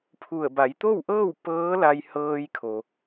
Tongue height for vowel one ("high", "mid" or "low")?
high